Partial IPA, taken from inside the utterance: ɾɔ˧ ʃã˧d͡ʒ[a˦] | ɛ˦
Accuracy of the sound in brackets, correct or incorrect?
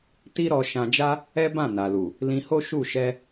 correct